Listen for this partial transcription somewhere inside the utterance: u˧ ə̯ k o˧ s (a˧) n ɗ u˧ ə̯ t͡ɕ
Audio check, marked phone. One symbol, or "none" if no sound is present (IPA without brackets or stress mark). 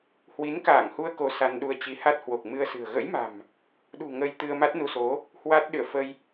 a˧